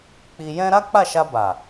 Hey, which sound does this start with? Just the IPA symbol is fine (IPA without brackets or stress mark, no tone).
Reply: k͡p